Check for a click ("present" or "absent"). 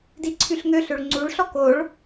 present